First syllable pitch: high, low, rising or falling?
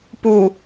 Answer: low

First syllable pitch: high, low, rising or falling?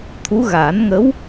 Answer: rising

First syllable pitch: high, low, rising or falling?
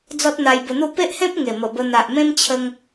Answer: high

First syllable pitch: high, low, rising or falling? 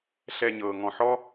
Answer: low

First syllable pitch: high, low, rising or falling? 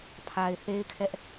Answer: low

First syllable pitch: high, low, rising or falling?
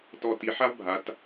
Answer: low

